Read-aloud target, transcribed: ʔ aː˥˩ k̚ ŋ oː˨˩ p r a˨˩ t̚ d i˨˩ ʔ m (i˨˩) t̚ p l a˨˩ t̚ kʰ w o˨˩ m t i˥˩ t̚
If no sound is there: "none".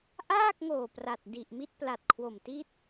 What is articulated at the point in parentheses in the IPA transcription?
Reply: i˥˩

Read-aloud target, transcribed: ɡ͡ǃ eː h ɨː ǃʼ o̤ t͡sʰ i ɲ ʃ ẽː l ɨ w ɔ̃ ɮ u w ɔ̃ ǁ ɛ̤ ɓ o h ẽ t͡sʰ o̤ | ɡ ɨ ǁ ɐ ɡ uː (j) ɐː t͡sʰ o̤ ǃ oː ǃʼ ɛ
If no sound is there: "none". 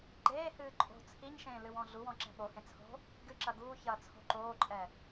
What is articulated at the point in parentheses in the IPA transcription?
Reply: ç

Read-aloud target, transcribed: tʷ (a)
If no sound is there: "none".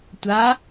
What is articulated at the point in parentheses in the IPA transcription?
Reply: a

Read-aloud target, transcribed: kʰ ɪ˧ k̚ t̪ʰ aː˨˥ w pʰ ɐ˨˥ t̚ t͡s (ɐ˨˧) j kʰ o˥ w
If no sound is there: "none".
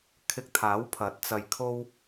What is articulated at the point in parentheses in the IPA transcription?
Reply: ɐ˧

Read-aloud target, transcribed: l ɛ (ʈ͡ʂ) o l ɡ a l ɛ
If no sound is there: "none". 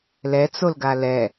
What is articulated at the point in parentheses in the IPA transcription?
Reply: t͡s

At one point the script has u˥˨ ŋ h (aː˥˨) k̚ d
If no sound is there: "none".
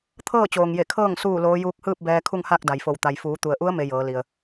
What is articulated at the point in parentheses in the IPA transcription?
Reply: aː˥˨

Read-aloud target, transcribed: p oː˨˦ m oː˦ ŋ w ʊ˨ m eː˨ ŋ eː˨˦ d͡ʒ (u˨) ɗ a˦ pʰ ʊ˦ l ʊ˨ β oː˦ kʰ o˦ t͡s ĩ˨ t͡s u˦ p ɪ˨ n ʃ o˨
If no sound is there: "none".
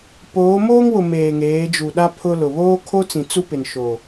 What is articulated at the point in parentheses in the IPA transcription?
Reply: u˨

